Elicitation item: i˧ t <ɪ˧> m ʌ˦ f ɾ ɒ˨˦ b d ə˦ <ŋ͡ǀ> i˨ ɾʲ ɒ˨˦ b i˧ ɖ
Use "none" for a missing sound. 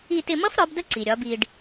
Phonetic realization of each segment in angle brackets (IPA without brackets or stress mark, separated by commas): ɪ˧, ǀ